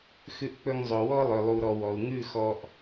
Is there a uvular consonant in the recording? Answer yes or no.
no